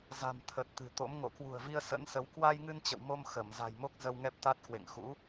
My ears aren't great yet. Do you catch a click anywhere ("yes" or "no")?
no